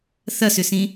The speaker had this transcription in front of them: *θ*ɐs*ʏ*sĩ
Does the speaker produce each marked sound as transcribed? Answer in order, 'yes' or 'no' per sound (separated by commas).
yes, yes